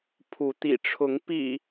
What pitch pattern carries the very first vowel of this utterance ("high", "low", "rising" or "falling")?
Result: rising